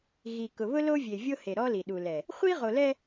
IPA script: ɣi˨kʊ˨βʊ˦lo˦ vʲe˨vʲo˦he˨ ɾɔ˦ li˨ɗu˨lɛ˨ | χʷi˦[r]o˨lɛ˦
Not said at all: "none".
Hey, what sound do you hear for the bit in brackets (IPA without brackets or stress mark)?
ʁ